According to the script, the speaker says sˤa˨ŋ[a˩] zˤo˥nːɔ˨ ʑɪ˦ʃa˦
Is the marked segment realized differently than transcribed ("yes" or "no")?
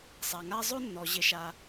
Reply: yes